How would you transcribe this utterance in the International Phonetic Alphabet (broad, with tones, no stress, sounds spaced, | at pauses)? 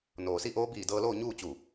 n oː˩ s i˥˨ ʔ oː˧˥ b iː˧˩ d ɤː˧ l oː˥˨ ɲ uː˥˨ t͡ɕ u˧˩